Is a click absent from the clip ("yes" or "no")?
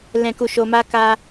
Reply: yes